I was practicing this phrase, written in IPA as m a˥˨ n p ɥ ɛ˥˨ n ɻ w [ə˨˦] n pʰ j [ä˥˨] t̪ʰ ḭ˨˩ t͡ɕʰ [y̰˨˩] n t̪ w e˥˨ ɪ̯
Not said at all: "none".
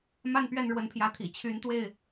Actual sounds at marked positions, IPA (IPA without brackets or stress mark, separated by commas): ə˨˦, ä˨˦, y˨˦